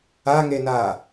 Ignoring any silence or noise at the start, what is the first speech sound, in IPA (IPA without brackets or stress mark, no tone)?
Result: a